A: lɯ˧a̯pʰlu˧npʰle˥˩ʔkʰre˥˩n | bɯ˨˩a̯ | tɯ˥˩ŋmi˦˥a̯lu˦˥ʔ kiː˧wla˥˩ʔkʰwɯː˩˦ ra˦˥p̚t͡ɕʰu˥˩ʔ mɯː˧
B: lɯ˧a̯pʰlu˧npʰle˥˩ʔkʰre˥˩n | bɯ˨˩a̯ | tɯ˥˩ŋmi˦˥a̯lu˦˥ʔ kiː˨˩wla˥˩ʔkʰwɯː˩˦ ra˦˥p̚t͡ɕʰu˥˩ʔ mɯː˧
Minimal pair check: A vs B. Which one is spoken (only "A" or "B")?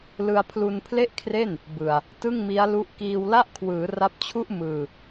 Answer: A